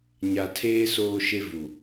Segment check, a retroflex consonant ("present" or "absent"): absent